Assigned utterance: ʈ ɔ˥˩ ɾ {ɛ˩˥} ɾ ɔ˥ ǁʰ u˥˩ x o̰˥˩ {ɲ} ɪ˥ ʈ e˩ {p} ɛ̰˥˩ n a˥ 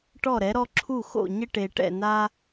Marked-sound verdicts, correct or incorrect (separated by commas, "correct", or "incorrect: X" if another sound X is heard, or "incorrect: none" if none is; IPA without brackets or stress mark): correct, correct, incorrect: ʈ